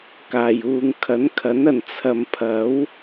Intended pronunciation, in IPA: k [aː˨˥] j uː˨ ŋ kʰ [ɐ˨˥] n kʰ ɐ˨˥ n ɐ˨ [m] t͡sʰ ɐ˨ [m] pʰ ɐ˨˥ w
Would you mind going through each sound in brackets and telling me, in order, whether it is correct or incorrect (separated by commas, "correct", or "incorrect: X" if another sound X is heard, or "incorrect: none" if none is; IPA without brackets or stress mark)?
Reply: incorrect: aː˨˩, correct, incorrect: n, correct